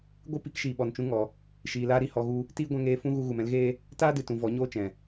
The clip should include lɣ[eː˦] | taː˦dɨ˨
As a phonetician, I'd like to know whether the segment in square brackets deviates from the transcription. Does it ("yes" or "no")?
no